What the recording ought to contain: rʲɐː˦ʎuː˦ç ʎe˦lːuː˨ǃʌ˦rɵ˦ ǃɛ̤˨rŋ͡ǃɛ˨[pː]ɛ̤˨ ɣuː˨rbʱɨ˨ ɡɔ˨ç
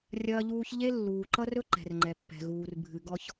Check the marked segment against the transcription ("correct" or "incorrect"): correct